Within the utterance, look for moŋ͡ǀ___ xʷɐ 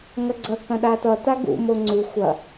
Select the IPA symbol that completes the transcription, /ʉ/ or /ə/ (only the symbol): ʉ